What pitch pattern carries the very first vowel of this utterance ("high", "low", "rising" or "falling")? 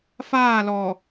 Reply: falling